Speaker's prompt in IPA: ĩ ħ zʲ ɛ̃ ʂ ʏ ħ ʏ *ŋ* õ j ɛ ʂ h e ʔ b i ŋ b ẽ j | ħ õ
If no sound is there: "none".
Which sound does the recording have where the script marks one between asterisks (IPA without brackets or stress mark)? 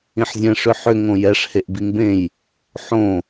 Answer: ŋ